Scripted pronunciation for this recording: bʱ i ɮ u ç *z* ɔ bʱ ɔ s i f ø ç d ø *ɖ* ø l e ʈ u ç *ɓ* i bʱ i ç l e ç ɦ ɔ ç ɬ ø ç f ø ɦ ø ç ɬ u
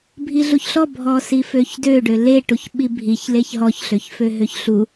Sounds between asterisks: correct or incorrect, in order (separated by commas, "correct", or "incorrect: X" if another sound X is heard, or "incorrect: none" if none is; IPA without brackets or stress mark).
incorrect: ɬ, correct, correct